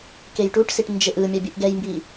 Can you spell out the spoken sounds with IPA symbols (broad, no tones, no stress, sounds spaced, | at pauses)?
k e j ʈ u ʈ s i ʈ n d͡ʒ e ʔ ɯ mʲ a bʲ ɯ ʔ ɡ ɛ j m b i